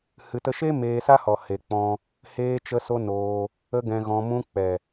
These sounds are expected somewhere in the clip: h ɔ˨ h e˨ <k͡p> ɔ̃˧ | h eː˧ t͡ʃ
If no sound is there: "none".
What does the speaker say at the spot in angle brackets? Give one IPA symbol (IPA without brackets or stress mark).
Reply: k͡p